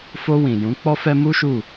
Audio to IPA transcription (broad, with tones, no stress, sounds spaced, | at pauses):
f o˧ w ĩ˨ j ũ˨˦ k͡p ɔ˦ f ɛ˦ m u˦ ʃ u˦˨